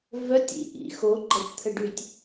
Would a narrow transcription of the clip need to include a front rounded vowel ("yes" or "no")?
yes